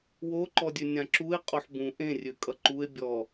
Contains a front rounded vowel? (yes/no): yes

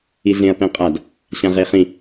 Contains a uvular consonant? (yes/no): yes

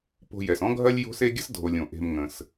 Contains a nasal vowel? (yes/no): yes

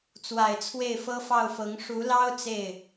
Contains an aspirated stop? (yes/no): yes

